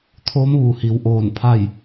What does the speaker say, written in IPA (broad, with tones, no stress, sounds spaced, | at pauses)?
t̪ʰ oː˧˥ m ʋ u˩ h i˩˧ w ʔ oː˧˩ n pʰ a˥˨ j